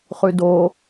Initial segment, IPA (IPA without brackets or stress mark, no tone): χ